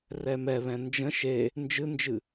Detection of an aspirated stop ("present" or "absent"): absent